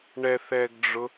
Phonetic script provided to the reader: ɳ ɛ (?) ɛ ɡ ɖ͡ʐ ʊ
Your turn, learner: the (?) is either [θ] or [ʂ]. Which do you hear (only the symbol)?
θ